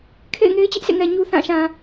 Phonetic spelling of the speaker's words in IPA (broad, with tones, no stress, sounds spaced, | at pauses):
kʰ ḛ˦˨ ɪ̯ ŋ e˦ ɪ̯ t͡ɕ ɪ˦ ʔ sʰ ḛ˦˨ ŋ ɛ˨ ɲ u˦ θ ã˦˨ ʃ ã˨